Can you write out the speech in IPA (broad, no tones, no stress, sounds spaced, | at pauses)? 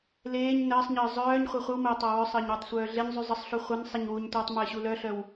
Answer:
l eː ɲ n əː sˤ ɲ əː zˤ œː ɲ χʷ ɛ χʷ ə w m əː tˤ a w œ sˤ əː ɲ w ə tˤ sʷ œː ɮ e ɲ zˤ y zˤ ə sˤ ɬ u χʷ ə n sˤ ɛ ɲ w u ɲ tʷ əː tˤ m əː ɕ u l œ ɬ œ w